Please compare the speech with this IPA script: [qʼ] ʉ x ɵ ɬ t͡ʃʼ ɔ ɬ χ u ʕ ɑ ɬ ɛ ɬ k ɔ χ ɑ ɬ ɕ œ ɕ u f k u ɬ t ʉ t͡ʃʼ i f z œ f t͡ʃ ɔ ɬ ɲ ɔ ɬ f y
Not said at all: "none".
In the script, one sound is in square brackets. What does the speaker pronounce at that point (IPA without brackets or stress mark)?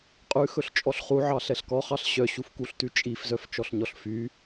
qʼ